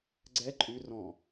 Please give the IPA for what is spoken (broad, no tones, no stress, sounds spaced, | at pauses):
ɡ͡ǀ ɛ ǃʼ ʉ r ɔ̃